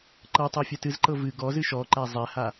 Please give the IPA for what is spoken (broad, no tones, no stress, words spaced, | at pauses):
ǃɤtˤɛ fʲɛtɨzǃɤ vɨ ɡɔzɨ ʃɔǃæ zˤɛha